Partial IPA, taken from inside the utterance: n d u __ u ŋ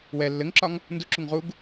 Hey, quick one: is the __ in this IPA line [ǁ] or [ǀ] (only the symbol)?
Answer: ǁ